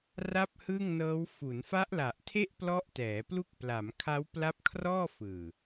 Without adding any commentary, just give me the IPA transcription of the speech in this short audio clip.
ra˥˩p̚ hɯ˥˩ŋnɤː˦˥w fu˩˦nfa˦˥ʔla˨˩ʔtʰe˥˩ʔ plɔ˦˥ʔtɛː˩˦plu˦˥k̚ pla˩˦mkʰa˦˥w pla˦˥p̚kʰrɔː˥˩fɯː˨˩

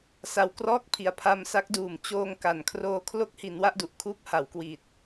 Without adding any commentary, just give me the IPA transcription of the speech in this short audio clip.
sa˨˩wkrɔː˦˥k̚pʰi˩˦a̯ pʰa˧m sa˦˥k̚ duː˨˩m t͡ɕoː˧ŋka˨˩nkʰroː˧ kʰlo˥˩k̚hi˩˦n wa˥˩ʔdu˨˩ʔkʰuː˦˥p̚ ha˩˦wkwi˨˩t̚

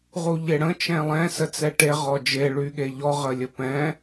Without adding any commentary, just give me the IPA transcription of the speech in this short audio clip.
ʁuʎeɽə̃ t͡ʃɛ̃lˠɛ̃ sət͡sɛʈe ʁɔd͡ʒe ɭyɠeʎɔ ʁəlʲəpɛ̃

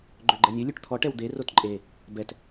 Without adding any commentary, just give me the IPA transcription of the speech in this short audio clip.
ɡ͡ǃøɡ͡ǃɛnʲø lʲʉʈt̪ʰɔ ʈɛwd̪e rotǃʼe | bɛt

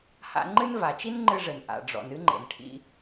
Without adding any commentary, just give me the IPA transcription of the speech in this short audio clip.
ha̰˧ ŋ͡ǃɨ˥n va˩t͡ʃi˥nŋ͡ǃɨ˧ʐɘ˩n ʔa̰˩ɖ͡ʐɔ̰˩n ɨ˥ŋ͡ǃḛ˩n ʈʰḭ˧

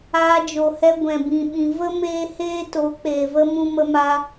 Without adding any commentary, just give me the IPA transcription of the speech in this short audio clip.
aː˧d͡ʒo˨hɛ˧ ɡʷɛ̃˨bĩ˨ ɓĩ˨ və˦ meː˦heː˦to˨˦ k͡peː˨və˦ mũ˦mə˦maː˦

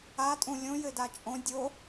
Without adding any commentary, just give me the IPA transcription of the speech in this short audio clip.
atʼũ lʲõ jɘdat͡ʃʼõ dʲo

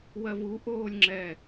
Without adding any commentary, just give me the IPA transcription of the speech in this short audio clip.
wɜvu ʔoːlʲŋ͡ǁɛ

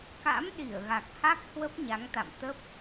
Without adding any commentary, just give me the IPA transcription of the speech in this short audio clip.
ka̰˧˥m ɗi˧˩ə̯ɣa˨˩k̚ha˦˥k̚ hwə˦˥p̚ɲa˨˦ŋt̪a̰˧˨m t̪ə˦˥p̚

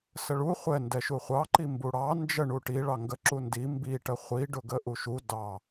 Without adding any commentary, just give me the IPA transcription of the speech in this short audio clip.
səɭu χʷɛ ndɛʃuχʷɑ ǃimbuɽɑ nd͡ʒə ɳuʈi ɭɑŋɡə ǁundi mbi ʈəχʷi ɖʊɡəʔuʃu dɑ

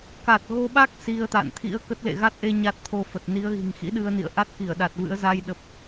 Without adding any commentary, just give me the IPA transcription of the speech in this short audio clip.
ka˨˩t̚ɣo˧ɓa˦˥k̚ si˧ə̯ t̪a̰˧˨nt̪ʰḭ˧˥ə̯kə˦˥t̚ lḛ˧˨ɣa˦˥t̚ʔe˧ ɲa˦˥t̚t̪ʰo˧fə˨˩t̚ ni˨˦ə̯ɣi̤˨˩ŋ xḭ˧˥ɗɨ˧ə̯nḭ˧˨ə̯ʔa˦˥t̚ ki˧˩ə̯ɗa˨˩t̚vɨ̰˧˥ə̯ za˧jɗə˨˩p̚

